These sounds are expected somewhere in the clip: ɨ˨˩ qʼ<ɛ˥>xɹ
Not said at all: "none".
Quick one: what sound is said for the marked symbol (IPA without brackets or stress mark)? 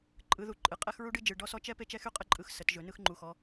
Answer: ɛ˥